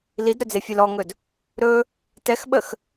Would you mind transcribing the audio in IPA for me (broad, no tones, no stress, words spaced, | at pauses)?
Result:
lidɾɵd͡zefʲel ɔŋɵd | ɾɵ | tɛxɓəx